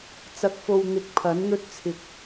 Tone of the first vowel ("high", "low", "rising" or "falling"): rising